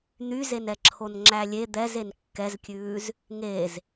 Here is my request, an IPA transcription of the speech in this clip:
n̪ y z e n ɛ ǁʰ o n ŋ͡ǁ æ lʲ e d̪ ɛ z e n kː ɛ z kʲ ʉː z | ŋ e z

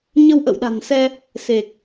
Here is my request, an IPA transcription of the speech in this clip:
ɲ ə˧ w ʔ ə̰˧˨ w ɗ a̤˨˩ n s ɛ˧ | s e˨˩ k̚

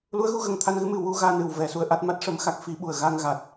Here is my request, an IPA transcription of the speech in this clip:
l u˧˥ ə̯ ɣ u˧ ɣ ə˨˩ ŋ t̪ʰ a˧ n ɣ ɨ˧˥ m ɨ˨˩ w u˧ ɣ aː˧ n ɨ˨˩ w v ɛ˨˩˨ s u˧ ə̯ ʔ a˦˥ t̚ m a˦˥ t̚ ʂ ə˧ m x a˦˥ k̚ f i˧˥ ɓ u˨˩ ə̯ ɣ a˧ ŋ ɣ a˨˩ t̚

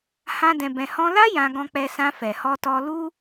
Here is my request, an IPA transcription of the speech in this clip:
h ã˦ d ɛ̃˧ b ɛ̃˧ h ɔ̃˧ l a˦ j ã˧ ɡ ɔ̃˧ k͡p ɛ˧ s ã˧ f ɛ˨ h ɔ˧ t ɔ˧ l u˦

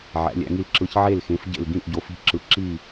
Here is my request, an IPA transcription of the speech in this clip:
ʕ æ̰˩˧ lʲ æ̰˩˧ ŋ i˧˩ l ǁ ɯ˩˧ ç ʕ e˧˩ l x ẽ˩˧ f ɟ ḛ˧˩ l ɡ ĩ˧˩ ʔ ɟ o˩˧ f i̤˧˩ ǁ ɯ˩˧ ǁ i˧˩

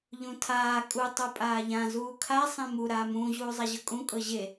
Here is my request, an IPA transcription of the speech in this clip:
ʎ ũ tʰ aː kʼ u tˤ u pʼ aː ʎ ã z uː kʰ a sˤ ẽ m u ɾ aː m ũː ʑ uː zˤ a ʑ ɤ kʼ ũ kʼ ɤ ʑ e

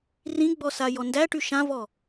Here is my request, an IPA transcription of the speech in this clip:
r ĩ ɡ͡b ɔ s a j ɔ n d æ ʈ y ʃ ã v ɔ

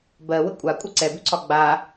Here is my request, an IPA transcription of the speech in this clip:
b ɜ w ə kʷʼ a kʷʼ ə ǀ ɛ b ʉ ǀʰ ɒ ɡ͡b a

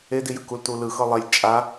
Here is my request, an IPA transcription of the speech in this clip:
e d i j ɯ k u l t u l ɯ x ɤ lˠ e lʲ t͡ʃʼ a

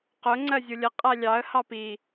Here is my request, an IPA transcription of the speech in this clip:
q ʊ ŋ͡ǀ ɜ zʲ u lʲ ə qʼ æ lʲ ɑ ə̯ h ɑ p i

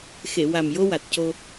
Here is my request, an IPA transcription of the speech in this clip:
x e˨˩˨ w a˨˩ m j o˧ w a˨˩ t̚ c o˧

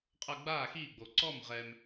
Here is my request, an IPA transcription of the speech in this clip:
qʼ ɤ˧ ɡ͡b aː˦˨ x iː˦˨ ɡ͡b o˨ ǀ ɔ˦˨ m ʁ ɛ˧ m

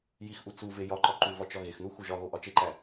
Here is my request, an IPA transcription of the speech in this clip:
j i x ʔ u t͡s u v e j ɒ ǃ ɒ ǃ u v ɒ t͡ʃ ɒ ɣ e x n u x u ʒ ɒ ɣ o ʔ ɒ t͡ʃ e ǃ æ

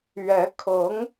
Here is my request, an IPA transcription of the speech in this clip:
ɥ ɛ˧˥ kʰ ɤ˧˥ ŋ

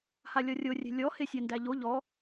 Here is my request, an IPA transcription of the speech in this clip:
h a lʲ ɔ rʲ o rʲ ɛ̤ lʲ ɔ h e sʲ æ n d æ ʎ o ʎ ɔ

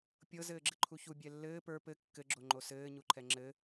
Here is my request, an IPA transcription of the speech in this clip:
pʲ ɤ z ɘː ɡ͡ǁ ɘ ǃʰ u ç u bʲ ɛ lː ɘː p ə˞ p ɘ kː ɘ ɡ͡ǁ o ŋ͡ǃ o s ɘː ɲ u ǃʰ ɛ ŋ͡ǁ ɘ

